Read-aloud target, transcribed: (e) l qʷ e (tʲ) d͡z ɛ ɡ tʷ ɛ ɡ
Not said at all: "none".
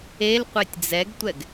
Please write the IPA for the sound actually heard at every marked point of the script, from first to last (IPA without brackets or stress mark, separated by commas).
e, tʲ